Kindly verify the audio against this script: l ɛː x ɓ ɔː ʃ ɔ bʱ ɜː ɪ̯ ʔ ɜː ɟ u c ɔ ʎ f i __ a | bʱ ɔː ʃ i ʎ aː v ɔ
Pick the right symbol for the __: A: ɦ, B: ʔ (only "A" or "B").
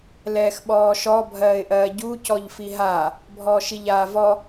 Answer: A